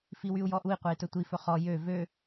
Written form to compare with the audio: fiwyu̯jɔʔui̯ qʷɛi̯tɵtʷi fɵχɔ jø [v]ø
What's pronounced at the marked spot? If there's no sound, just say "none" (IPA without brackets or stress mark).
v